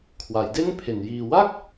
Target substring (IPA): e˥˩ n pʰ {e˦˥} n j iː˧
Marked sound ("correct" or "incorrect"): incorrect